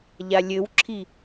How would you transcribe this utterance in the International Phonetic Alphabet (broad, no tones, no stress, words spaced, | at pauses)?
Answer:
ʎalʲɘwǁʰi